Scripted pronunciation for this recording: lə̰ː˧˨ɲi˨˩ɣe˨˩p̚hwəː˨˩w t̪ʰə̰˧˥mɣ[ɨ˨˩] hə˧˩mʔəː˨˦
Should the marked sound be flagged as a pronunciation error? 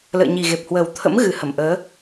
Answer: no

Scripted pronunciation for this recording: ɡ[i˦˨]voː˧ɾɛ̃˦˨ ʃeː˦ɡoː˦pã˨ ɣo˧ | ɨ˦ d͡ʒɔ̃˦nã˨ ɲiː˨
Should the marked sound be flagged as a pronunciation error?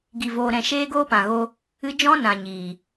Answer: yes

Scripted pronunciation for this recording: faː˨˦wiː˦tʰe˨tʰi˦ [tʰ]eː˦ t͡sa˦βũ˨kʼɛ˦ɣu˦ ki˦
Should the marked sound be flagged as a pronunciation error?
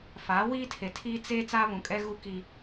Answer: yes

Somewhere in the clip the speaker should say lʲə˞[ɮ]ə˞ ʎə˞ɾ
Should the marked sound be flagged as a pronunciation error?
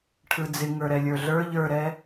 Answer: no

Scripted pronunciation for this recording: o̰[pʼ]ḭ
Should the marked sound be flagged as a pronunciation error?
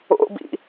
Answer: yes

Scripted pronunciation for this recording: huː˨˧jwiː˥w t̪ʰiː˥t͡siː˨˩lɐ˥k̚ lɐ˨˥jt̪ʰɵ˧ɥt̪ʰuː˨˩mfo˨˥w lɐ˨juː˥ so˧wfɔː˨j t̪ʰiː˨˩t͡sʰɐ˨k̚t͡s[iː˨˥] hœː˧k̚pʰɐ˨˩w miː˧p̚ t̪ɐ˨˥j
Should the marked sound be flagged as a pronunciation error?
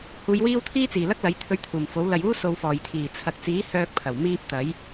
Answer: no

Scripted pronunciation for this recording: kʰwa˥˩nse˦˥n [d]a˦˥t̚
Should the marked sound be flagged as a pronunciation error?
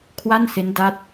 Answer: no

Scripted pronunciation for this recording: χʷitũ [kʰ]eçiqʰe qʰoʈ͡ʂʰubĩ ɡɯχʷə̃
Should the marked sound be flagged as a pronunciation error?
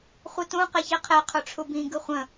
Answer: yes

